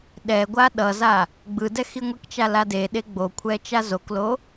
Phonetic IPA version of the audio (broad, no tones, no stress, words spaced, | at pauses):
ɗɛɡʷa ɗʌza | ɡ͡bɯdɛ xiŋʷekt͡ʃa ladeɗe ɡ͡bokʷʰɛ t͡ʃazoklo